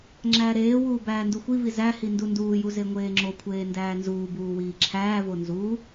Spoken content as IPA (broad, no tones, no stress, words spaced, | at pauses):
ŋ͡ǁæːɾeːwuː bæːnduxʷivi zæhi ndunduːju zeŋʷeːŋ͡ǁokʷʰeː ndæːnzuːbuː wiːǁʰæːvo nzu